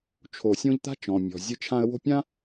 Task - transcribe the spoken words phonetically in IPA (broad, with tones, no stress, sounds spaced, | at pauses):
t͡ʃʰ o˨ sʲ õ˧ ʎ t̪ a̤˦ t͡ʃ ɔ̃˨ mʲ ɔ̤˨ zʲ ɨ˧ t͡ʃʰ ã˧ ə̯ w o̤˦ pʲ ã˦